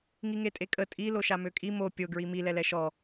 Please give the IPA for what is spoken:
ŋ i ŋ e tʼ e kʼ ə tʼ i l o ʃ a m ø kʼ i m o pʲ o ɡ ɹ i m i l ɛ l ɛ ʃ ɔ

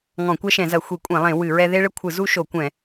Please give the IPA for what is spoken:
ŋ ɔ̃˧˩˧ kʷ ɛ˦ ʃ ɛ̃˧˩˧ z ɐ˧˩˧ xʷ i˧˩˧ kʷʼ ẽ˧˩˧ lˠ ẽ˧˩˧ w ɨ˧˩˧ ɹ ɛ˦ ð e˦ ɭ ɘ˦ kʷʰ ɨ˧˩˧ z u˦ ʃ o˧˩˧ kʷ ɛ̃˧˩˧

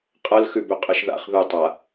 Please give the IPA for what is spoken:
qʼ ɐ l x ʉ b ʉ qʼ ɯ ʃ ð a̰ χ ð u tˤ a

